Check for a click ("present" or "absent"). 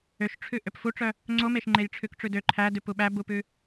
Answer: present